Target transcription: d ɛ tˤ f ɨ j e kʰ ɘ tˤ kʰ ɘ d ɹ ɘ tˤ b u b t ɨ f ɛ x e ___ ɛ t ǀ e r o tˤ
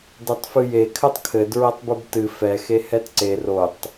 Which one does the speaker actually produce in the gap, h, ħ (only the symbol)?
h